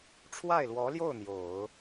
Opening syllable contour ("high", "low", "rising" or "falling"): falling